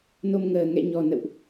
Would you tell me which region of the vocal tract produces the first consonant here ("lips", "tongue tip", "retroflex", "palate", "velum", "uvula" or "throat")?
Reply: tongue tip